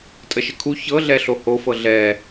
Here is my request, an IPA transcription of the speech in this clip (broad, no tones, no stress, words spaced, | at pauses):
tʼəʃəkʰu çɤɮɛ ɬohofɤ ɮɛ